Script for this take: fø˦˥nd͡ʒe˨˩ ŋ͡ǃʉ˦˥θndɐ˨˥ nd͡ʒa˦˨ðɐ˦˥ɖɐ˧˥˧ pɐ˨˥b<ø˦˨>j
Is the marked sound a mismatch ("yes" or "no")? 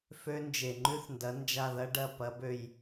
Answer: no